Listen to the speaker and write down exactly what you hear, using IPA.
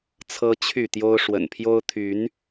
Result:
t͡sʰ ɤ˦ t͡ɕʰ y˥˨ t̪ j o˦ ʊ̯ ʂ w ə̰˨˩ n pʰ j o˦ ʊ̯ t̪ʰ y˨˦ n

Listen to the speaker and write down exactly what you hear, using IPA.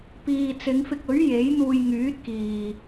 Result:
p iː˨ t͡s ɪ˨˧ ŋ f ɪ˧ k̚ ɵ˨˥ ɥ j e˨˥ j n̪ uː˧ j ŋ yː˨˥ t̚ k iː˨

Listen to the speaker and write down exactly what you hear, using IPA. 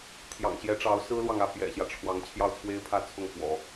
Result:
t̪ʰ j ɑ̰˨˩ ŋ ɕ j ɛ˧˥ ʈ͡ʂ ɑ˧˥ ʊ̯ s ɹ̩˥ l w ɑ˨ ŋ ä˥˩ p j ɛ̰˨˩ ɕ j ä˦ ʈ͡ʂʰ w ɑ˧˥ ŋ t͡ɕʰ j ɑ˥˩ ʊ̯ t͡sʰ w e˥ ɪ̯ pʰ ä˥˧ t͡sʰ ʊ˥˩ ŋ f w ɔ̰˨˩˦

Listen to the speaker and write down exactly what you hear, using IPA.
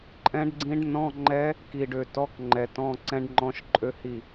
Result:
ǃʼ ɛ̃˧˥ ɖ ɡ͡ǀ ĩ˧˥ ɖ n ɔ̃˧˥˧ ŋ͡ǃ ɛ˧˥ | k i˨˩ ɖ ø˨˩ t ɔ˧˥˧ k ŋ͡ǃ ɛ˨˩ t ɔ̃˧˥˧ ǀ ɛ̃˧˥ ɖ ŋ͡ǃ ɔ̃˧˥˧ ʃ ǃʼ ø˧˥ h i˥˩

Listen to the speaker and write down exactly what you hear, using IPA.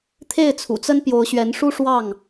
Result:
t̪ʰ e˥˨ ɪ̯ t͡sʰ ṵ˨˩ t͡s ə˦ n p j o˨˦ ʊ̯ ɕ ɥ ɛ˨˦ n ʂ u˦ ʂ w ɑ˥˨ ŋ

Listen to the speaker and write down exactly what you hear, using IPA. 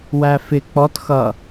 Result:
w æ f ɪ k͡p ɔ t x ʌ

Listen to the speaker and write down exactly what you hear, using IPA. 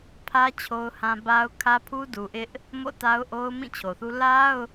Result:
pʰ ä˦ t͡ɕʰ o˦ ʊ̯ h ã˦ b a˦ ʊ̯ kʰ ä˦ pʰ u˦ d u˨ ʔ ɪ˦ ʔ | m o̰˦˨ t a˦ ʊ̯ ʔ o˦ ʊ̯ m ĩ˦˨ t͡ɕʰ o˨ θ u˦ l a˦ ʊ̯

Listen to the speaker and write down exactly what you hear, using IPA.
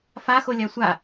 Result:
f a x o lʲ a sʷ a

